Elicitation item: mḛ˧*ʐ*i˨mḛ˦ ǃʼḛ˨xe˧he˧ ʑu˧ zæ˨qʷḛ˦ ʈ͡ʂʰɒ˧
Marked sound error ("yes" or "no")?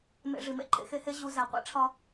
no